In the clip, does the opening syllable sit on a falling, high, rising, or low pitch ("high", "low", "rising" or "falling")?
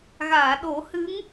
low